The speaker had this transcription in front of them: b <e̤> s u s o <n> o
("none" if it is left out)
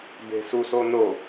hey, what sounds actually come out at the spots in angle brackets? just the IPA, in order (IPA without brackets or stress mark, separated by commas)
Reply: e̤, n